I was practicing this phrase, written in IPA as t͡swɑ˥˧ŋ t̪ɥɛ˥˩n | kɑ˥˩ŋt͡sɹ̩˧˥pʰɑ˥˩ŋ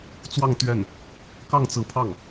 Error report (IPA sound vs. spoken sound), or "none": none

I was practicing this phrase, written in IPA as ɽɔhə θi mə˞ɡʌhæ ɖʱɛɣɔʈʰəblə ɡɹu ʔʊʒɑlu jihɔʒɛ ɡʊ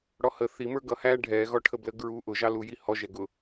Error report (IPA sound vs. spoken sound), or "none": none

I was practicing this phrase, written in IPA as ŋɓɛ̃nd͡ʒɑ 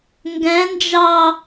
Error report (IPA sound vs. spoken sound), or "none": ɓ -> ɡ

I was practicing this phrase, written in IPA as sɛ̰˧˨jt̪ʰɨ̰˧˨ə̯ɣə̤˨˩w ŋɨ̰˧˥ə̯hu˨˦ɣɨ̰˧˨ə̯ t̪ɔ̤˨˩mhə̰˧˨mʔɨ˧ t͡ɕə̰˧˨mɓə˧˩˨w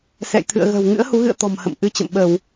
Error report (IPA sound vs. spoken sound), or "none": none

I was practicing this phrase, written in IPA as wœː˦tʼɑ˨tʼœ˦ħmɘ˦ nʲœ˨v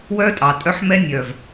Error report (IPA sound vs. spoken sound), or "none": ɘ˦ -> ɛ˦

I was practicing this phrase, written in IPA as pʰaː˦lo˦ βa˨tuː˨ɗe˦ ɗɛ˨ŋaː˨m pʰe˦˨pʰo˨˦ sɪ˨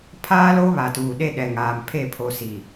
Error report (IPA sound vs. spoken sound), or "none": ɪ˨ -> i˨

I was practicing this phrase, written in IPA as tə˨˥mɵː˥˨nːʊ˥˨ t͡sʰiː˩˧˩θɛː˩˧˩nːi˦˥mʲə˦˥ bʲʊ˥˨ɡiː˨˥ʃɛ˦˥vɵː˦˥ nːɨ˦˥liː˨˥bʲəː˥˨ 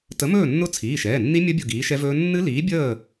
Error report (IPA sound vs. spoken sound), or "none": θ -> ʃ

